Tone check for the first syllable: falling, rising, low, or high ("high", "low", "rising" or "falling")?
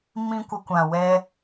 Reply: high